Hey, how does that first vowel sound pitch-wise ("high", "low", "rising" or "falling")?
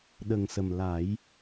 low